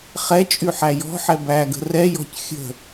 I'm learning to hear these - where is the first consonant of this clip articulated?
uvula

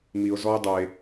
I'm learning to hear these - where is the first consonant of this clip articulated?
lips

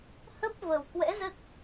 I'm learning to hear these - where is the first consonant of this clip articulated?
throat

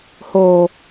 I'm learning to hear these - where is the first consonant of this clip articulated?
throat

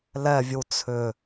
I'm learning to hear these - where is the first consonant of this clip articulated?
tongue tip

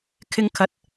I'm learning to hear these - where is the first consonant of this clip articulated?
velum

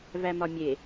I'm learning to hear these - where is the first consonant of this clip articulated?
lips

